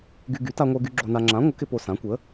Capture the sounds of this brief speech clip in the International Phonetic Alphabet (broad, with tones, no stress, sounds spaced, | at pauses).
ɡ y˧ ɡ y˩˥ t a˧ ŋʷ ə˞˧ ɡ y˧ ɡ͡ǁ o˧ n a˧ ŋ͡ǁ ã˩˥ ŋʷ ə˩˥ k ɪ˧ p o˧ s ã˩˥ kʷ ə˩˥